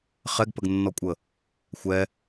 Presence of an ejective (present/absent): present